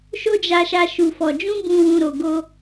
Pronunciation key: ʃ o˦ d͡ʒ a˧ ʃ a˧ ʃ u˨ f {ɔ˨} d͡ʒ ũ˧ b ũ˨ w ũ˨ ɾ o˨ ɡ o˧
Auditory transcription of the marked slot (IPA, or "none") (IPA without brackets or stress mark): ɔ˨